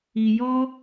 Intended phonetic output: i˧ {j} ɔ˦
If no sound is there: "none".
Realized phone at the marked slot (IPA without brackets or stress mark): j